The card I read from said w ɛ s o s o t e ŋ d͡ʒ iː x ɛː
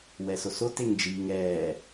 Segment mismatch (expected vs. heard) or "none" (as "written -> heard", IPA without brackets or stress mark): x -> ŋ